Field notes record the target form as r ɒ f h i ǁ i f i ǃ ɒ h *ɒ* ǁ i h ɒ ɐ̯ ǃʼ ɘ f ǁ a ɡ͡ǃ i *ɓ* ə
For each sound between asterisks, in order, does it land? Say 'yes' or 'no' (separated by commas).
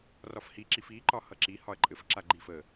no, no